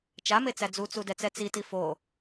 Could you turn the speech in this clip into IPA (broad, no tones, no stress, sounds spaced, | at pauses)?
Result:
t͡ʃ a m e t͡s æ d͡z u t͡s u d ɛ t͡s ɛ t͡s i t i f o